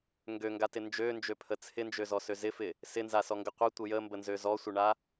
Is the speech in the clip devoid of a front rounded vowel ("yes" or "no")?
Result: no